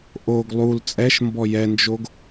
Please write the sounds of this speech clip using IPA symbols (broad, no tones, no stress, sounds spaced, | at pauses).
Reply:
ʔ o ɡ lˠ u l t͡sʼ ɛ ʃ m b ɔ j ɛ n d͡ʒ o ɡ